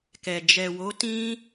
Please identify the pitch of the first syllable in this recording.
low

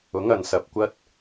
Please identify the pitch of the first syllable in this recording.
rising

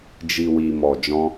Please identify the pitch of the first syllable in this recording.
low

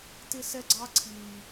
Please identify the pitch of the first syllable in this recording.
high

